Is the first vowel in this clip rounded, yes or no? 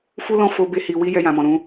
yes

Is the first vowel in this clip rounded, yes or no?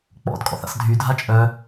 yes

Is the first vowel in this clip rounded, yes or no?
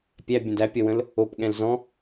no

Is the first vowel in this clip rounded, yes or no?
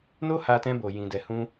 yes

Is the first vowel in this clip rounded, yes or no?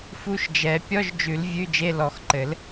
yes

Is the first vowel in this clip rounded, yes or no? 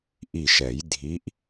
no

